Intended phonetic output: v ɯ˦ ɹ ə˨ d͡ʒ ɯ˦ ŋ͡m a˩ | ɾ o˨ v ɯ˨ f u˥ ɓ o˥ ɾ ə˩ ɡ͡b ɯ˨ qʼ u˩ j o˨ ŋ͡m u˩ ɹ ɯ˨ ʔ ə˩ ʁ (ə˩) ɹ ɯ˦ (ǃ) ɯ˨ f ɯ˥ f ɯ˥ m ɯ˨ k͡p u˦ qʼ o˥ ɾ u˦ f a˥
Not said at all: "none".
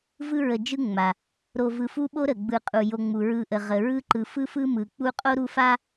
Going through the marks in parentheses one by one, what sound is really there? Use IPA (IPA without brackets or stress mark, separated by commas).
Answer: ə˩, ǃ